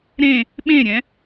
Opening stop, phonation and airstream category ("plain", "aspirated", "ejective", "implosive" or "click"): implosive